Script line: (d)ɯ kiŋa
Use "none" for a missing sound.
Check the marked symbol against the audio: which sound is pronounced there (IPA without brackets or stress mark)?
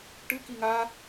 ʈ